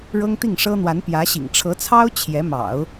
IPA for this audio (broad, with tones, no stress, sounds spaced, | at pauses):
ɻ ɤ˥ ŋ t̪ i˥˩ ŋ ʂ ɤ˥ n̪ w a˧˥ n p j ä˧˥ ɕ ḭ˨˩ ŋ ʈ͡ʂʰ ɤ˧˥ t͡sʰ ɑ˥ ʊ̯ t͡ɕʰ j ɛ˧˥ m ɑ̰˨˩˦ ʊ̯